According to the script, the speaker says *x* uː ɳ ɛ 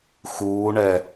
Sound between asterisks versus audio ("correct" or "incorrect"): correct